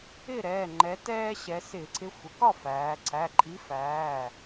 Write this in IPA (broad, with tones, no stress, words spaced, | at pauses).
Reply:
ɪ˥˩ɾɛː˩˧˩ ŋ͡ǃɛ˩˧tɛː˧ɕɛ˩˧ sɪː˧˩˧ǀʰɪ˨˥ xʷə˩˧kɒ˥˩ fæː˩˧ ǀʰæ˩˧˩ǃʼi˨˥fæː˩˧˩